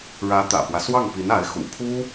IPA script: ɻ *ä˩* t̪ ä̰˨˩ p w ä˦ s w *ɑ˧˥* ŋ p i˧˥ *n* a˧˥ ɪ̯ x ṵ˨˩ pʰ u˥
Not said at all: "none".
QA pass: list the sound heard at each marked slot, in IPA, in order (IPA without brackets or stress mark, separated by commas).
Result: ä˧˥, ɑ˥˩, n